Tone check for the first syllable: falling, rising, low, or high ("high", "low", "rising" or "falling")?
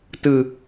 low